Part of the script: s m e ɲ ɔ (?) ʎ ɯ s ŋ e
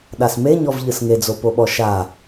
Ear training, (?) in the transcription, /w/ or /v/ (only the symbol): v